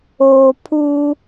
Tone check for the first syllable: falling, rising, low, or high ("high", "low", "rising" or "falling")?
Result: low